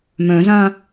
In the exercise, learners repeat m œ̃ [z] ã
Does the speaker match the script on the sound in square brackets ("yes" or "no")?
yes